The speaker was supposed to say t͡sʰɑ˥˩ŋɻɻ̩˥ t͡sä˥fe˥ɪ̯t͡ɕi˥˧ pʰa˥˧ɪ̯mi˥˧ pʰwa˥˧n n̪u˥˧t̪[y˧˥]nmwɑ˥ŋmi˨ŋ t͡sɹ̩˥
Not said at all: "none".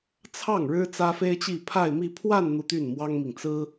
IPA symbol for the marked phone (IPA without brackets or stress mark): y˥˩